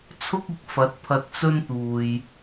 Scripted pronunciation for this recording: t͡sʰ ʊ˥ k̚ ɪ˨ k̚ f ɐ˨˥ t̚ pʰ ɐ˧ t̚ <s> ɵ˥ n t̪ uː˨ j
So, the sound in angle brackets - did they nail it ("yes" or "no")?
no